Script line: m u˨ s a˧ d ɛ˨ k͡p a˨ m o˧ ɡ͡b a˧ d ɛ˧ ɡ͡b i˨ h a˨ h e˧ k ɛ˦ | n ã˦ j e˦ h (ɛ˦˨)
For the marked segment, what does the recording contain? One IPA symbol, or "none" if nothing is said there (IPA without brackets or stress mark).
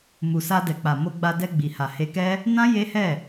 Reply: ɛ˦˨